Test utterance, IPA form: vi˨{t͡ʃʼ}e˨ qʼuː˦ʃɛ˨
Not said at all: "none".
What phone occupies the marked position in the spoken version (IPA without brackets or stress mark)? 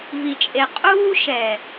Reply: t͡ʃʼ